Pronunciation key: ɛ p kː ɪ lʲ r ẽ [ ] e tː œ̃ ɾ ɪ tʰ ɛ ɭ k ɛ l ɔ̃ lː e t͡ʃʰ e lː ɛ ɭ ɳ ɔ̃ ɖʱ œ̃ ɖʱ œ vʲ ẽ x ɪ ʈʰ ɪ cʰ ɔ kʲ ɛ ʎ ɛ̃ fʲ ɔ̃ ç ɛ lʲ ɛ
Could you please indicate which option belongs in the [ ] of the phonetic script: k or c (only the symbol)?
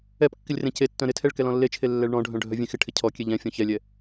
c